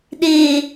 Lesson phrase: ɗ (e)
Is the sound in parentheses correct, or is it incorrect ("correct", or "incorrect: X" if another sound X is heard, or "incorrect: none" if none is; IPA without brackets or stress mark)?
correct